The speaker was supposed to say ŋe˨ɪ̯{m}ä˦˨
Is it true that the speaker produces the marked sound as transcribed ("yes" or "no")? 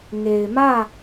yes